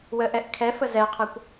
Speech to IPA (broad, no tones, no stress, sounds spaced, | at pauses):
w ə ʔ ɛ ʔ kʰ ɛ f ə z ɛ qʰ ɛ kʷ